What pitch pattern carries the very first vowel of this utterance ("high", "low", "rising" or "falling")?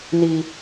low